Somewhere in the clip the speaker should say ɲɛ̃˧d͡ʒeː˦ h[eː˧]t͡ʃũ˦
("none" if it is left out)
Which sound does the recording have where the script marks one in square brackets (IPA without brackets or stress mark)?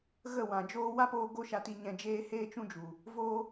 eː˦